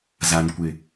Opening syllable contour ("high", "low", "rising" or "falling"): low